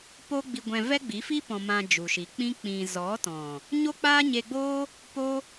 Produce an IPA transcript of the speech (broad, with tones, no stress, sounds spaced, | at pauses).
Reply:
p o˦ ɡ͡b i˧ ɡʷ ɛ̃˧ v ɛ˦ ɡ͡b i˨˦ f i˦ p ɔ̃˧ m ã˧ d͡ʒ u˨ ʃ i˨ k͡p ĩ˦ k͡p ĩ˧ z ɔ˨˦ t ɔ̃˨ | ɲ o˦ k͡p aː˦ ɲ e˧ ɡ͡b oː˦ | p o˦